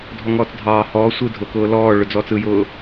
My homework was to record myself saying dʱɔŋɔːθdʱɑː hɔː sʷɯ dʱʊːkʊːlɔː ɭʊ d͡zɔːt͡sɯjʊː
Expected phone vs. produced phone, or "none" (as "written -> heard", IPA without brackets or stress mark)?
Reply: θ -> t͡s